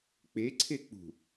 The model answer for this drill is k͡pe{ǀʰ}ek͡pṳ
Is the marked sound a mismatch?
no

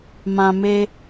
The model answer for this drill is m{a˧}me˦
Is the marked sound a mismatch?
yes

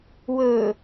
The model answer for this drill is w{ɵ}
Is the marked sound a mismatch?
no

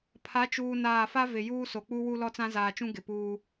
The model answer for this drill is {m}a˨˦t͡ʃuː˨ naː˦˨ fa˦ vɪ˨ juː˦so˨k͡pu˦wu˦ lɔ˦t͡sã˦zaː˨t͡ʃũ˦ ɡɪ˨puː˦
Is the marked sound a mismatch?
yes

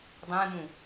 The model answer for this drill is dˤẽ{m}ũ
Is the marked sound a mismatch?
no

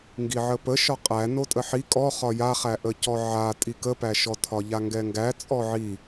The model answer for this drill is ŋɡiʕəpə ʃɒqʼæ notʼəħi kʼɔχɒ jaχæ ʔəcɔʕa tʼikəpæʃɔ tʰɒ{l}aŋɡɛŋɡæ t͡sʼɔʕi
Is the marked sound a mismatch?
yes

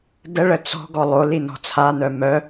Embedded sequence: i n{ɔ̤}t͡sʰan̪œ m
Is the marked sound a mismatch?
no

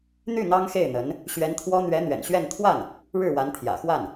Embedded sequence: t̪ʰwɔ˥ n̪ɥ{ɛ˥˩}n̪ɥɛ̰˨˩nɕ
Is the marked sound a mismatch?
yes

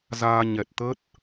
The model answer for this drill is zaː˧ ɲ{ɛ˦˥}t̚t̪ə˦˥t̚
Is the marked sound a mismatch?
yes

